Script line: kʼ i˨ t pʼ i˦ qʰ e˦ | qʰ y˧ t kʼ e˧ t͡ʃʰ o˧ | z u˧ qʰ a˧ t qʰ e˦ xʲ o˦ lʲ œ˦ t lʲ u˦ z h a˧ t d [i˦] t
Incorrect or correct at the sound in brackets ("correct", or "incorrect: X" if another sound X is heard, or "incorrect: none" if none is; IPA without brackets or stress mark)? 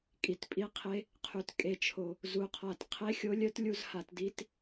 correct